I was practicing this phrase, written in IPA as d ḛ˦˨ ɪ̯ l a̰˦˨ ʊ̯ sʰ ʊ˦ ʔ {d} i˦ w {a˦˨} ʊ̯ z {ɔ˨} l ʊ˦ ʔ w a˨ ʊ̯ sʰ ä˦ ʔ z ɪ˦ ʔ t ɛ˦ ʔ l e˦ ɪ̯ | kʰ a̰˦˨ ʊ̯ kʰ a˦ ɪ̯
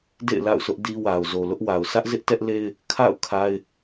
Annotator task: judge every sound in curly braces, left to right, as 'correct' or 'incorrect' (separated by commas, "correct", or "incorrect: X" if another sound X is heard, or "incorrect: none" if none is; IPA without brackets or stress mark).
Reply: correct, incorrect: a˨, incorrect: o˨